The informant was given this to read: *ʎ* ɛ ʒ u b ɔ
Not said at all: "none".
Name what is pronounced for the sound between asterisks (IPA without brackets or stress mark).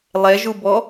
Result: lˠ